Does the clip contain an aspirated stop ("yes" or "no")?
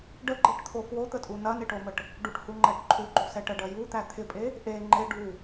yes